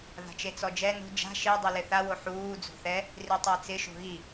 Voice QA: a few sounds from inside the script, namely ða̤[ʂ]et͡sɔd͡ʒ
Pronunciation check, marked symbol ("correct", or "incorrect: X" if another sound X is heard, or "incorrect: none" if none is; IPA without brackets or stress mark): incorrect: t͡ʃ